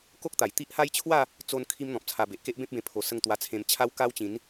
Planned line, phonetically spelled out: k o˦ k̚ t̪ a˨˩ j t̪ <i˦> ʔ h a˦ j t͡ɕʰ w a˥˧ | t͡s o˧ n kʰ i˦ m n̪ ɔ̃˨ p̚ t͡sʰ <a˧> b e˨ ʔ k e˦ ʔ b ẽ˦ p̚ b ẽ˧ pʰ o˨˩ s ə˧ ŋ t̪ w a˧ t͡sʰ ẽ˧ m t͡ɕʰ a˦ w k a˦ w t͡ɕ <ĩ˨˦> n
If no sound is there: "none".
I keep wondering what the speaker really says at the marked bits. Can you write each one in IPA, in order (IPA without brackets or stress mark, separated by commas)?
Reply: i˦, a˧, ĩ˨˦